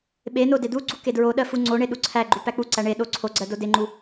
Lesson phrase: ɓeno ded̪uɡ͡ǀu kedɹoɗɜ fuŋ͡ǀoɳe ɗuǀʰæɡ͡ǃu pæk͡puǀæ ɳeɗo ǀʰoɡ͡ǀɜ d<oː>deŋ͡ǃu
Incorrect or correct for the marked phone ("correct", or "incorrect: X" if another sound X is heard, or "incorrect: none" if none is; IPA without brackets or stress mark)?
incorrect: o